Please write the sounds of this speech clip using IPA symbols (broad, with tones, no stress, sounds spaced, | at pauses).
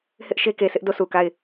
h ɪ˦ ʔ ʃ e˦ k e˨ sʰ ɪ˦ ʔ d o˦˨ s u˨ k a˦˨ ɪ̯